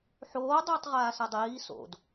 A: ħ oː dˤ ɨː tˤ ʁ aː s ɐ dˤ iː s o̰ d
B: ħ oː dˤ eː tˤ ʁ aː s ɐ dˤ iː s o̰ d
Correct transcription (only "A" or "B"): A